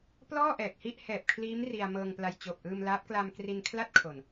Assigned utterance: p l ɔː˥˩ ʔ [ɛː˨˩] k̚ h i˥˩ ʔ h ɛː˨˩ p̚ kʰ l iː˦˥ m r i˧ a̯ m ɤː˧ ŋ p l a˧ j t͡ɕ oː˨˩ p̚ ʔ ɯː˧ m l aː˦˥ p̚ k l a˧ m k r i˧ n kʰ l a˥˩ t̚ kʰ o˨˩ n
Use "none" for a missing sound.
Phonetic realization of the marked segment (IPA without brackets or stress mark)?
ɛː˨˩